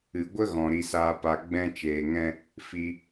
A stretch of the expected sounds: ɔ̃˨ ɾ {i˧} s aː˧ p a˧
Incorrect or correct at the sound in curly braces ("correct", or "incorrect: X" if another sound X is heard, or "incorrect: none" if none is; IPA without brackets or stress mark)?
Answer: correct